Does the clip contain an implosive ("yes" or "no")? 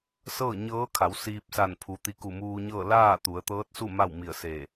no